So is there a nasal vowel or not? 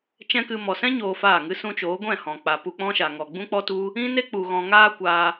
yes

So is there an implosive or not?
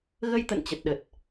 yes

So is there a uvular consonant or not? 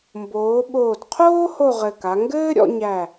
yes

